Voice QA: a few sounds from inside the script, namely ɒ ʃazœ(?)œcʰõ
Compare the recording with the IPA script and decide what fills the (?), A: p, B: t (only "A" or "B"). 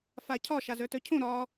B